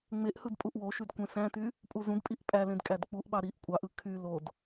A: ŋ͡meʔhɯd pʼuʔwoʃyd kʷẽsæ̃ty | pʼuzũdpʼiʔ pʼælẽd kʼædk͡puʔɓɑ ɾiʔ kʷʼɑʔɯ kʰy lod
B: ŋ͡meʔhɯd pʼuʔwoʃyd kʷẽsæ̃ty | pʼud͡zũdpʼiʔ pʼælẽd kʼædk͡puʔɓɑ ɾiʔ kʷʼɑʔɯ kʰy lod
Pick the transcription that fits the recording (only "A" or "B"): A